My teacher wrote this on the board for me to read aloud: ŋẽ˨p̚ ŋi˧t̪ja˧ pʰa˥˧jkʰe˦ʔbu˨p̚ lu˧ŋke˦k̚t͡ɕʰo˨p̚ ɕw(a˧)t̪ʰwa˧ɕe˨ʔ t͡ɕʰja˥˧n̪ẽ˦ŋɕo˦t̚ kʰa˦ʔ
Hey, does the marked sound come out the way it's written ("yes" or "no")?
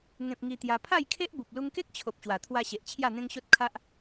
no